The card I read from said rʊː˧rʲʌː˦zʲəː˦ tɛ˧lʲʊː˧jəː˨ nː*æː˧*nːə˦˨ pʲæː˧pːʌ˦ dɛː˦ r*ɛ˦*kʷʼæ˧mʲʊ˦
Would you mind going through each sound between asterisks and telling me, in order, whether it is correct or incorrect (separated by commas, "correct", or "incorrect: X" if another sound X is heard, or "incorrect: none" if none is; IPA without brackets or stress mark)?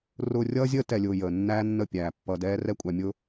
incorrect: æː˦, correct